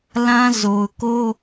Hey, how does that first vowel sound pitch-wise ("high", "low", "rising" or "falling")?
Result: high